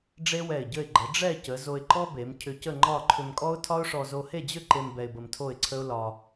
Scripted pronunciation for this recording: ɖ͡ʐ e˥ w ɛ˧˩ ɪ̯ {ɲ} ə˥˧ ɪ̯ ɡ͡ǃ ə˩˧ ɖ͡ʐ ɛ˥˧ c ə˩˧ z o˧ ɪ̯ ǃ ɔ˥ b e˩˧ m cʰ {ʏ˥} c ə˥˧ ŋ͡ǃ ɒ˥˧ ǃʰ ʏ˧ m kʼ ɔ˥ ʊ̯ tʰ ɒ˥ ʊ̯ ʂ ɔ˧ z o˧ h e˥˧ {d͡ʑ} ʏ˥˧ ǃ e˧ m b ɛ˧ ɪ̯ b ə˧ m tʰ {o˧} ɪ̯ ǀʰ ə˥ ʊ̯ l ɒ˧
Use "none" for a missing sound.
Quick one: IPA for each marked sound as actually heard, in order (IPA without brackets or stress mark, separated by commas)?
ɟ, ʏ˧, d͡ʑ, o˥˧